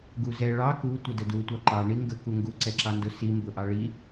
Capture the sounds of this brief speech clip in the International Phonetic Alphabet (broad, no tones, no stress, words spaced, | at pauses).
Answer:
ɡuzɛ ɭɑ ku tʷədədu tʷɑǃɑ ɳiŋɡə kuŋɡu ǀɛǁɑndʊ si mbʊʔɑɭi